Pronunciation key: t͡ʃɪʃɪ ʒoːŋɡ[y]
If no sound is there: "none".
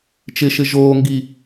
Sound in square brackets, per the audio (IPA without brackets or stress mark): i